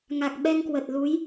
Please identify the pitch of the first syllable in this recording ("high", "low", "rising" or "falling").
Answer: low